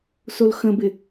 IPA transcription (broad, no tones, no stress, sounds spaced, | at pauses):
s o l x ə̃ b ɪ